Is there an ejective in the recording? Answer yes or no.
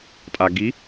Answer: yes